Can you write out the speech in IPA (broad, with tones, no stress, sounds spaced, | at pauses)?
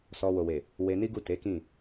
s ɔ˧ w o˨ w e˨ | w e˧ n i˦ ɡ u˦˨ t e˨˦ k ĩ˦˨